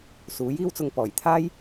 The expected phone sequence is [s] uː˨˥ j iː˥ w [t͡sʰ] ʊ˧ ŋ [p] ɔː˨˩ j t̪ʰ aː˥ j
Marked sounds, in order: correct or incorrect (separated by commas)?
correct, incorrect, correct